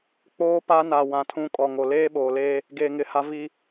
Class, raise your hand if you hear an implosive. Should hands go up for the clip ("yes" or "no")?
yes